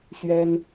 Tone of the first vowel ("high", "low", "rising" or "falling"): high